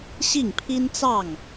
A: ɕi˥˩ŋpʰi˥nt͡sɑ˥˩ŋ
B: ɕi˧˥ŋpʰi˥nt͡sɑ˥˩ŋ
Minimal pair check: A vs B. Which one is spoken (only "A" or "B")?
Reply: A